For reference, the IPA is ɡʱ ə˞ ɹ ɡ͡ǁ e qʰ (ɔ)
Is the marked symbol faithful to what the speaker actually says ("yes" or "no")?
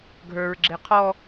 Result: yes